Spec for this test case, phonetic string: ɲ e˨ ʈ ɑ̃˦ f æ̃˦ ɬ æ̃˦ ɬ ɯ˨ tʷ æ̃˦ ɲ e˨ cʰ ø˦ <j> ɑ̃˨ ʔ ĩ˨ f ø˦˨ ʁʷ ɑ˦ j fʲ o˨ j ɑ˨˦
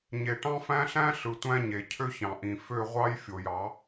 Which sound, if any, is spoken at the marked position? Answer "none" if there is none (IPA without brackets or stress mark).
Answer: ç